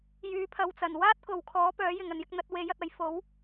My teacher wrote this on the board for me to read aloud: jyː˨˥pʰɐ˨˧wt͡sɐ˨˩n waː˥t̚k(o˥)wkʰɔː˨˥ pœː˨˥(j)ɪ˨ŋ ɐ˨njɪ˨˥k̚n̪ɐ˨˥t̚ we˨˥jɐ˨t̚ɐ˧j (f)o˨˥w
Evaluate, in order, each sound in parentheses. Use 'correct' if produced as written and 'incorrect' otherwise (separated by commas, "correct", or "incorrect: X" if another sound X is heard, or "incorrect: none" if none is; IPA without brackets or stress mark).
incorrect: o˨, correct, correct